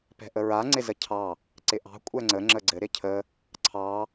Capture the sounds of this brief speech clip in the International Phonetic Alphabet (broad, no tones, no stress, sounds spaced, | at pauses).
p ɛ̤ ʔ ə ɹ a ŋ͡ǀ ɪ z ə cʰ ɑ | ǀ ɪ ʔ ɑ̤ kʷʼ ɛ ŋ͡ǀ ə ŋ͡ǁ ə ɡ͡ǀ ɘ ɾ ɪ cʰ ə | ǀʰ ɑ